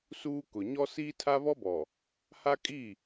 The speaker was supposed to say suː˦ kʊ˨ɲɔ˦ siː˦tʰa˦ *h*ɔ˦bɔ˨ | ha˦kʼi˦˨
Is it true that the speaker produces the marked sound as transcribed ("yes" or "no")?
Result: no